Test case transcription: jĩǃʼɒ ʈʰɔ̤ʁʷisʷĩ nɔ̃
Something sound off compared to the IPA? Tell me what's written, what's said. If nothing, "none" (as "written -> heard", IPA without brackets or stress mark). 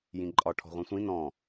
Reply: i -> ĩ